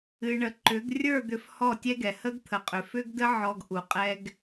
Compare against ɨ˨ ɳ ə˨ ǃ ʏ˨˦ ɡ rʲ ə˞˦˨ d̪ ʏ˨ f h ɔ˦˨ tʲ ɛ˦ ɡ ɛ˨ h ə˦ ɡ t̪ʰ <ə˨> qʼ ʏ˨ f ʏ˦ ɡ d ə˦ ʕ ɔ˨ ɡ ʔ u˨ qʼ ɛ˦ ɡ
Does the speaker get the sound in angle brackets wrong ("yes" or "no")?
no